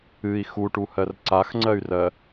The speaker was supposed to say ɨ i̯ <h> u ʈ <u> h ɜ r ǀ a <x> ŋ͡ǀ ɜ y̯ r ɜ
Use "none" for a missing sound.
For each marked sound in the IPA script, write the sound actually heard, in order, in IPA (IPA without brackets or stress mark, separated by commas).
x, u, x